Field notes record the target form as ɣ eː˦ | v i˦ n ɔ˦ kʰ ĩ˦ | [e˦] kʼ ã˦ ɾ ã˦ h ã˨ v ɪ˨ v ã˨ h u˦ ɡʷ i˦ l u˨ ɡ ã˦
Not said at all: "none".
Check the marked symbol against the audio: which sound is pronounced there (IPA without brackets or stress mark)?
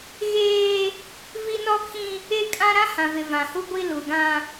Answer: e˦